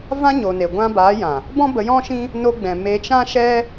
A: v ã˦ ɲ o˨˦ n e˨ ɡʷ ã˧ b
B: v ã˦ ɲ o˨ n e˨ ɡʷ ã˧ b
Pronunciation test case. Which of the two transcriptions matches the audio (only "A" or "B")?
B